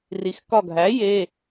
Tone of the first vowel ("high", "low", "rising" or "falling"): low